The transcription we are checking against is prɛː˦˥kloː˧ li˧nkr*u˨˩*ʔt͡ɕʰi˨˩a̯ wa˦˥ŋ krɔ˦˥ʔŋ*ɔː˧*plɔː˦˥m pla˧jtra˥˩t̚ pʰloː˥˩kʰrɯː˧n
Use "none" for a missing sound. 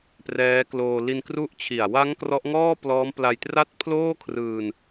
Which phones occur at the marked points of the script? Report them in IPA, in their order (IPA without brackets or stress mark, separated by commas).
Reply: u˦˥, ɔː˥˩